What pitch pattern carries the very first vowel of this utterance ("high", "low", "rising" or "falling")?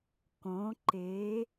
rising